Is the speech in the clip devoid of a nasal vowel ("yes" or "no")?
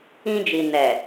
no